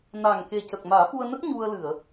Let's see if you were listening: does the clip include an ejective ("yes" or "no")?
no